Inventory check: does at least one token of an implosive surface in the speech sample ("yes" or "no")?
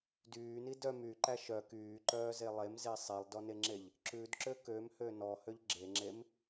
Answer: no